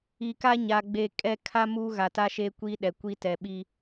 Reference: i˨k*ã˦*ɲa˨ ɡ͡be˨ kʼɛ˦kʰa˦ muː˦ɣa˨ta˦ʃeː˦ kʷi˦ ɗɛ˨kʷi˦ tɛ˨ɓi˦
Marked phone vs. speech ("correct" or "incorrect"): incorrect